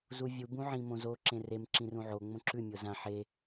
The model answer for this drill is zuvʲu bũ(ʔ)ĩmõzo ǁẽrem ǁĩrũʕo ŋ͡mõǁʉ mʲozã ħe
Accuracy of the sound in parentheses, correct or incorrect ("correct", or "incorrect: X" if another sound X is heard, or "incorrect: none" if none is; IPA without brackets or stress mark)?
incorrect: ʕ